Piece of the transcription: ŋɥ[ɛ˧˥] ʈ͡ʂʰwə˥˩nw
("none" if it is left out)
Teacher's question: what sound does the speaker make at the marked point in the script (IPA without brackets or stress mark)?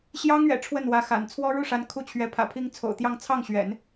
ɛ̰˨˩